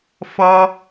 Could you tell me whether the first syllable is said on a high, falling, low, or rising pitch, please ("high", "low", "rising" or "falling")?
low